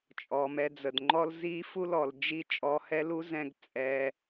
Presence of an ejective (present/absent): present